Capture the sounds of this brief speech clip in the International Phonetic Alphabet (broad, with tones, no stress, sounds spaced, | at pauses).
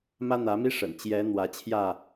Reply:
m ä˦ n̪ ä˨˦ m i˦ ʂ ə̰˨˩ n t͡ɕ j ɛ˨˦ n̪ w ä˨˦ t͡ɕʰ j ä˥˨